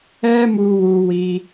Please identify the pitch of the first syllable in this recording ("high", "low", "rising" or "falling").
high